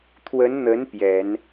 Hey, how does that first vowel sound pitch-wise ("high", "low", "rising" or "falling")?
rising